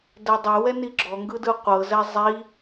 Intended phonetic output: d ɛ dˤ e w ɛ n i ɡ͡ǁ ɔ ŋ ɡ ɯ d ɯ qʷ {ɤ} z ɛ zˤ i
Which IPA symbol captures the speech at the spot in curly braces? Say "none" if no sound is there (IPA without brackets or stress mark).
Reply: ɤ